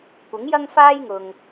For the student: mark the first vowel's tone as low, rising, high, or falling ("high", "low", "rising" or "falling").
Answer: rising